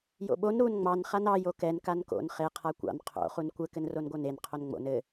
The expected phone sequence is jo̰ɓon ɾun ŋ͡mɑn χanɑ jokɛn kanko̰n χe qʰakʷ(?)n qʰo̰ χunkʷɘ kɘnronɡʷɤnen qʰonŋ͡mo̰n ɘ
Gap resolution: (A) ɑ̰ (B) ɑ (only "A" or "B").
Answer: A